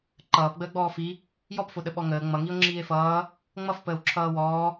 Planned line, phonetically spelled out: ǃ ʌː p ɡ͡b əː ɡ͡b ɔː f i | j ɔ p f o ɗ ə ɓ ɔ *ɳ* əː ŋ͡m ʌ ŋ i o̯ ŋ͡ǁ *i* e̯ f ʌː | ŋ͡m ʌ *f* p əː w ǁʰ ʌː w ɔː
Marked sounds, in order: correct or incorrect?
incorrect: ŋ, incorrect: iː, correct

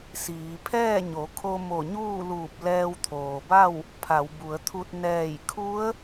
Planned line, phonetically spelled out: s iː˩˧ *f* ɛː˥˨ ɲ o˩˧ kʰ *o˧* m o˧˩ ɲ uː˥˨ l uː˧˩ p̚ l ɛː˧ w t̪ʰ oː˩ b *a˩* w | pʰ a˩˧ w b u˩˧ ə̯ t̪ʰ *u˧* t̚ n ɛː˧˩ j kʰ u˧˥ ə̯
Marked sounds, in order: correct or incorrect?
incorrect: pʰ, correct, incorrect: a˥˨, correct

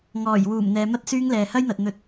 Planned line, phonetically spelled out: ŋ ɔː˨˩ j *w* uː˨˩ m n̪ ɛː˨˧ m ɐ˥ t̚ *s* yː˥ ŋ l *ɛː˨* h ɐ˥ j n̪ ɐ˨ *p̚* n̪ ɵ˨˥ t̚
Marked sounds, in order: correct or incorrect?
correct, correct, correct, incorrect: t̚

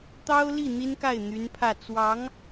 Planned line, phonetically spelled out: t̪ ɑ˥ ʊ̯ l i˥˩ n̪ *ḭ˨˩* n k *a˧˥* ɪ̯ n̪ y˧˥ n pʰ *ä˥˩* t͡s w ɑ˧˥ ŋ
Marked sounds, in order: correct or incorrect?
incorrect: i˥, incorrect: a˥˩, correct

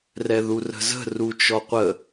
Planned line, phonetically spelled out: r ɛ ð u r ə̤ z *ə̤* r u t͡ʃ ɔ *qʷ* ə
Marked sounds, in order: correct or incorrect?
correct, correct

